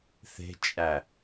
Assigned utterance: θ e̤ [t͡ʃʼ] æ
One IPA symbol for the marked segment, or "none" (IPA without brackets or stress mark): t͡ʃʼ